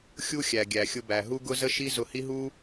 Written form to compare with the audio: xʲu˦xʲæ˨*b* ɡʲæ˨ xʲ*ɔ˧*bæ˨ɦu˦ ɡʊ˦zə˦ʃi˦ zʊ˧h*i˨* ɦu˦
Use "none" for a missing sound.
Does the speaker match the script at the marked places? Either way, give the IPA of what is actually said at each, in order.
none, ʊ˧, i˦

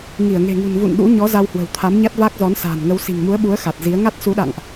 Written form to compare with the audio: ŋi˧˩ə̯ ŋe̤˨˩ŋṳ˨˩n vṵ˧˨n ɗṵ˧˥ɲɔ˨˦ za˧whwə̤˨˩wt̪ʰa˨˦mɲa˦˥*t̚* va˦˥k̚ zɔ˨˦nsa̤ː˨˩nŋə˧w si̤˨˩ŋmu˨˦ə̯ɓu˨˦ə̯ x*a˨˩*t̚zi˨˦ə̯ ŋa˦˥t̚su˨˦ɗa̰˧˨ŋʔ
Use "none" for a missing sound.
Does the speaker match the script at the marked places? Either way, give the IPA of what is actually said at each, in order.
t̚, a˨˩

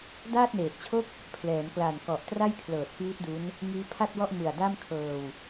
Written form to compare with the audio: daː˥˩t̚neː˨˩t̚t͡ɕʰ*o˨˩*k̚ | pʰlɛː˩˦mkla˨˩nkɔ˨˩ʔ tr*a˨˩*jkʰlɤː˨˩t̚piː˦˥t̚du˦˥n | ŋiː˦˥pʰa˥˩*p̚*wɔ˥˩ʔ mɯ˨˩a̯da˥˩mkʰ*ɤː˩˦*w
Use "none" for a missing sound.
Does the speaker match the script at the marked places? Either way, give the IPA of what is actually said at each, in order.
o˥˩, a˥˩, t̚, ɤː˧

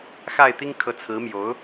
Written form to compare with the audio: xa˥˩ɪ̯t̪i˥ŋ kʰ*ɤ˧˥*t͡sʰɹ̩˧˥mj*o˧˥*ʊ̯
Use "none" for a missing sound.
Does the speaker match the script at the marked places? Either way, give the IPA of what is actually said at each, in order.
ɤ˧˥, o˧˥

